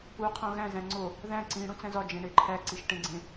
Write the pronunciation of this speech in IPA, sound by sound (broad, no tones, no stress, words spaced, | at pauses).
u qʰõɣæ̃ zæ̃ŋ͡ǀo | ðæ̃ ǀĩ ɽũt͡sæ̃zɒ d͡ʒẽɳeǃʰæ ǀiʃʈẽɡ͡ǀẽ